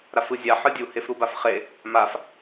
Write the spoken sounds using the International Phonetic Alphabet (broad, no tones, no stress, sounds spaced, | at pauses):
ɾ a f ɯ zʲ a ħ ɯ dʲ u h e f ɾ u b a f χ e | m a f